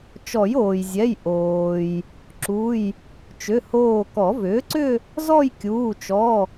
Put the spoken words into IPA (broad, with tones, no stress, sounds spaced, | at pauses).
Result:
t͡ʃ ɔ˨˩˦ j oː˩ j zʲ ɛ˩˧˩ j ʔ oː˩ j | ǁ u˩˧˩ j | t͡ʃ ʏ˩˧˩ h oː˧˩ k ɔ˨˩˦ v ʏː˩˥ ǀ ʏ˥˧ | z ɔ˥˧ j kʲ uː˩˧˩ t͡ʃ ɔ˩˧˩